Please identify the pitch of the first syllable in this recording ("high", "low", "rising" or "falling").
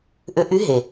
rising